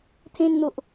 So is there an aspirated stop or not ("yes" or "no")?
yes